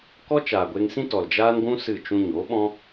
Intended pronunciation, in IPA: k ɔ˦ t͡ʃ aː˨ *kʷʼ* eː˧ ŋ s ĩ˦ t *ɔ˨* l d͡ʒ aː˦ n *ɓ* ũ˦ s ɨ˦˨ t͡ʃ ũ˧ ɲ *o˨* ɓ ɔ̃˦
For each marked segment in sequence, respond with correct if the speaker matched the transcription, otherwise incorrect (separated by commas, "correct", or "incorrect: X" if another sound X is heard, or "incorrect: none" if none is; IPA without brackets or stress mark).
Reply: incorrect: ɡʷ, correct, incorrect: ɡʷ, incorrect: o˨˦